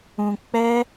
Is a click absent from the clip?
yes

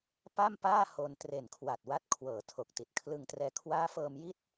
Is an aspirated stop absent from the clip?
no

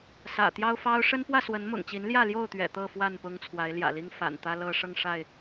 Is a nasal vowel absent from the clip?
yes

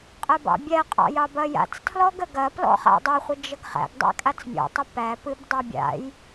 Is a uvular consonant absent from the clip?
no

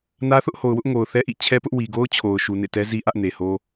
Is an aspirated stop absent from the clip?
no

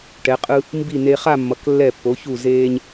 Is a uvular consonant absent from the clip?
no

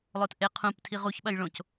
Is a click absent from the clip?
yes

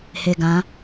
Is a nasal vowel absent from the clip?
no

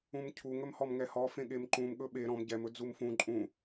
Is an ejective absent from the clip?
no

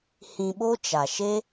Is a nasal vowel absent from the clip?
no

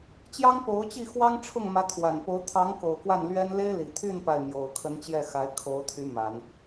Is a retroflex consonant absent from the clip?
no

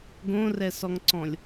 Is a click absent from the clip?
no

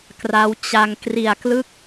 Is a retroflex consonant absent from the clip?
yes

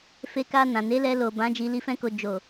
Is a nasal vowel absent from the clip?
no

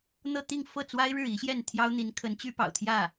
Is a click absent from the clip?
yes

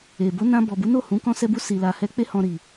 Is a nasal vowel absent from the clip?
no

